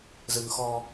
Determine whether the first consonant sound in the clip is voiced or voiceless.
voiced